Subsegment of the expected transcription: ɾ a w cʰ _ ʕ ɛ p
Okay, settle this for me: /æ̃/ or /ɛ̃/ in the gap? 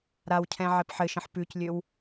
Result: ɛ̃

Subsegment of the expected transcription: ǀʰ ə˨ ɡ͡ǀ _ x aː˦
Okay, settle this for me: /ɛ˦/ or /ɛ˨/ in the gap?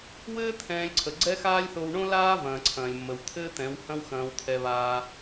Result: ɛ˦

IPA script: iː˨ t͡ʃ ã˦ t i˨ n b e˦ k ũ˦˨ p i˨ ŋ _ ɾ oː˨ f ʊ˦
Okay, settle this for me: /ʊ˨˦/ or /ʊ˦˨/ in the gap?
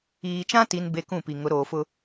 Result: ʊ˨˦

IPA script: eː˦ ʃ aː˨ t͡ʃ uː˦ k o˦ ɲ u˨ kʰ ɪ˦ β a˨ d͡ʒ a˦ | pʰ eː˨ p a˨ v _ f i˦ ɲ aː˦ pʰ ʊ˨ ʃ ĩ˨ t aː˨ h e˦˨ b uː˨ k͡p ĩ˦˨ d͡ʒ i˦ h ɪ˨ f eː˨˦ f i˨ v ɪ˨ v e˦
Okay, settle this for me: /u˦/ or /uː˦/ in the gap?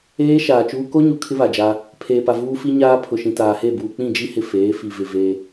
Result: uː˦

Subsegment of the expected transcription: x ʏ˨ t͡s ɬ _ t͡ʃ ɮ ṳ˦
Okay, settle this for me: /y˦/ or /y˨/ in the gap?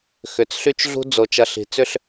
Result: y˦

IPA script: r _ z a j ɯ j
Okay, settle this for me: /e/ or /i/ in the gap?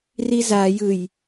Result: i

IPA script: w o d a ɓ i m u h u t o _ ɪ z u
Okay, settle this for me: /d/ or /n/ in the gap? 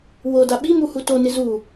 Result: n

